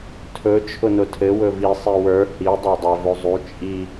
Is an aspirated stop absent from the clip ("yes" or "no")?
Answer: no